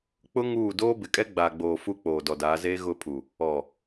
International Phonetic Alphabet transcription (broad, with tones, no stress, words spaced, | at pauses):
k͡pʊ˦ ŋuː˦˨ doː˦bɪ˨kʼɛ˦ ɡ͡ba˨ɡ͡boː˨ fu˦ k͡poː˨dɔ˨daː˨˦ zeː˦ ɣʊ˦˨pʰu˨ | ɔ˨